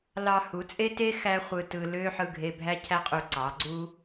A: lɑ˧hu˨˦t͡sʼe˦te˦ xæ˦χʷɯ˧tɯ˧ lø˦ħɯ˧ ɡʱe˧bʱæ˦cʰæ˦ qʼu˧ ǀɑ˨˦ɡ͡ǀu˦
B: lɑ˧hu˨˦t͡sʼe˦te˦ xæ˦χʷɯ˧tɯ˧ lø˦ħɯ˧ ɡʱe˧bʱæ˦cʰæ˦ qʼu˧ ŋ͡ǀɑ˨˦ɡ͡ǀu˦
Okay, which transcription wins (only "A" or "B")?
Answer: A